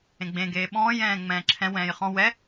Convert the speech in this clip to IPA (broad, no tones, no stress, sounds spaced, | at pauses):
ẽ ɡ͡b ẽ ɡ eː ɓ ɔ̃ː j ɛ̃ː ŋ͡m ɛ̃ː ǁʰ ɛ̃ w ɛ̃ː j χ ɔ̃ w ɛ